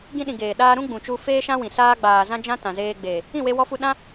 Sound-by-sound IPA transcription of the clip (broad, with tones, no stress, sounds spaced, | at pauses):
ɡ ĩ˧ ɗ ĩ˨ ɡ eː˨ ɗ aː˧ ɾ ũ˦ ɡ͡b ũ˨ t͡ʃ u˧ f eː˦ ʃ ã˦ w ĩ˨ s aː˧ ɡ͡b aː˨ z ã˦ d͡ʒ ã˦ t ã˨ z eː˧ ɡ͡b eː˨ | ĩ˦˨ w e˧ w ɔ˧ f u˧ ɗ ã˦